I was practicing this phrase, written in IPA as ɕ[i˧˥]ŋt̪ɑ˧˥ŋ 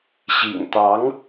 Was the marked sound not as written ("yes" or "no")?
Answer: yes